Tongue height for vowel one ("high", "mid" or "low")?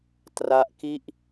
low